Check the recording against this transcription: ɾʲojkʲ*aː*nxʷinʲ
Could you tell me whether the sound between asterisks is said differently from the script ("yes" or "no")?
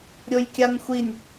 yes